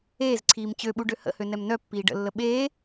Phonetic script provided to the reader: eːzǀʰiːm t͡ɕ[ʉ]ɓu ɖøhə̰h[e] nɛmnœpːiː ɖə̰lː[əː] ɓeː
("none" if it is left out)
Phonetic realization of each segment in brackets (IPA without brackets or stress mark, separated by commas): ø, ø, ə